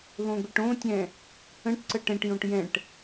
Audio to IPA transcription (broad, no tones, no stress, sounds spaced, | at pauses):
ð õ ɡʷ e ʈ õ tʲ ɛ̃ | ə̃ ʈ ǀ ə ʈ ɛ̃ ʈ j õ ʈ j ɛ̃ ʈ